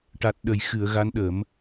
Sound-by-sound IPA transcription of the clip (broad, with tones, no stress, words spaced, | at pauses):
ʈa˨˩t̚ɗə˨˩jxɨ˨˩˨ə̯ ɣa˧˥nɗə˨˩˦m